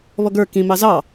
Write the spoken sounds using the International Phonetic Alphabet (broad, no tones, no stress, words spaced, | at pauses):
βɔɡə˞ kĩ mɑzɑ